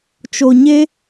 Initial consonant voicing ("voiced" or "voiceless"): voiceless